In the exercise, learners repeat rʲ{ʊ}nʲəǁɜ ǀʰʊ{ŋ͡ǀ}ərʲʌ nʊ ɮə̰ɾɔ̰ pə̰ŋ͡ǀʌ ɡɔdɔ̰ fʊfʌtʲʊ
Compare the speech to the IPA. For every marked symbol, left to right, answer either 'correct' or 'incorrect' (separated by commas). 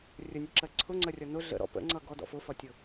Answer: incorrect, correct